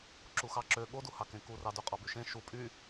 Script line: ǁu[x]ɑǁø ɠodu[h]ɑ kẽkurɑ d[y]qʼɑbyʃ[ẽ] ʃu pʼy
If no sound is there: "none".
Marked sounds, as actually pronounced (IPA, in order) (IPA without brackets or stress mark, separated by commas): x, h, y, ẽ